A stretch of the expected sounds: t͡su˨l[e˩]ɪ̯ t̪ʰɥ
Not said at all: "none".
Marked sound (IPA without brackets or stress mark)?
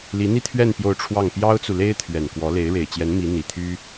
e˥